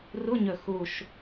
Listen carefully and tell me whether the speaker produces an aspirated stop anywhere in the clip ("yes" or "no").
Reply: no